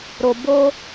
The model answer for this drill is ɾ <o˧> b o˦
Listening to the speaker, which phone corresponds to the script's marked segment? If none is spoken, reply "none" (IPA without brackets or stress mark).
o˧